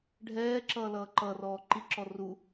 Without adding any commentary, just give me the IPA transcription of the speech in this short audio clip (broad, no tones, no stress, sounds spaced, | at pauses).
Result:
ɖʱ ɛː ǁ ʌː l ʌː ǃ ʌ r ɔː ǃ i ǁ ɔ r u